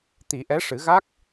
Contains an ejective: no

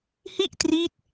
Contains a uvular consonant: no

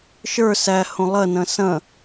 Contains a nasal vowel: yes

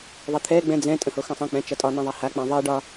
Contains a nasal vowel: yes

